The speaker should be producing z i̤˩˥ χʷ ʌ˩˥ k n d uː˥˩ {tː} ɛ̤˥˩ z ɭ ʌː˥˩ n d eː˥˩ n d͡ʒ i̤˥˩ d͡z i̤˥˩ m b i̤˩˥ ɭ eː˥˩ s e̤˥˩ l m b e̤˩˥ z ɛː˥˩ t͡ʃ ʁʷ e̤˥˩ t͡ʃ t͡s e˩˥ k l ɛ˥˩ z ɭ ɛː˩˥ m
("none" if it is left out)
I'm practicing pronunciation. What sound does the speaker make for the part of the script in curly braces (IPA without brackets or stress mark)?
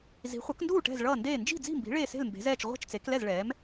ʈ